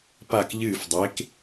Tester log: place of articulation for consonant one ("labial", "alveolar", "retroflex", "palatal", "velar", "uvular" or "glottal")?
labial